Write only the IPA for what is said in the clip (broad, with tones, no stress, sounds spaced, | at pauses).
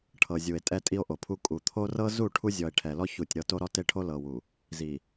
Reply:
ʈʰ ɤ˨ zʲ u˨ e̯ tʼ ɛ˦ tʼ i˦ o̯ ʔ o˨ pʰ u˦ kʼ u˨ t̪ʰ o˦ r ɤ˦ z u˦˨ ʈʰ u˦ zʲ ɔ˨ e̯ ʈʰ ɛ˨ l ɔ˦ ç u˦˨ tʲ ɾ ɤ˦ t o˦ ɾ ɔ˦ t e˦ ʈʰ o˦ l ɤ˨ w u˨ | z i˨